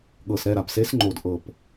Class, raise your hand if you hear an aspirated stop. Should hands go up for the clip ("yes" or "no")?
no